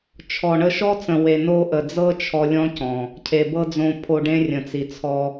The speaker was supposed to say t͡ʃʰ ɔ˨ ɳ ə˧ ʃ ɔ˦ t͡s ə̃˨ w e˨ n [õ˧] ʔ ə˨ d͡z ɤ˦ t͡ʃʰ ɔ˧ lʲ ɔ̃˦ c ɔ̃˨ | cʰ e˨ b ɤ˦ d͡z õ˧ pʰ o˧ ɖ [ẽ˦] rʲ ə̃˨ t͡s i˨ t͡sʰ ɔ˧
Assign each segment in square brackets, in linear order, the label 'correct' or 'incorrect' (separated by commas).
incorrect, correct